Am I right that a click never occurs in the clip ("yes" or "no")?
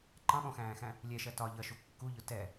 no